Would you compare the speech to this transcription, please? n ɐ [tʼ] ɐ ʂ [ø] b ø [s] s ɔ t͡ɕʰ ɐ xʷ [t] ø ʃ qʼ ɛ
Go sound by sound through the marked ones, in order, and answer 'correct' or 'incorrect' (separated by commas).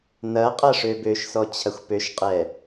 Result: incorrect, correct, incorrect, incorrect